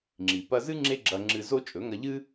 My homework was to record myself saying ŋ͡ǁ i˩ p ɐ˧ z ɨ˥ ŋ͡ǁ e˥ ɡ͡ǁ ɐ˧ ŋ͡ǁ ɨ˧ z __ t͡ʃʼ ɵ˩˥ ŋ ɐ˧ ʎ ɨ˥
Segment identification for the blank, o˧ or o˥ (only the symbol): o˥